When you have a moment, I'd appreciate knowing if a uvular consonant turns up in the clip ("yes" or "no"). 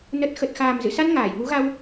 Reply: no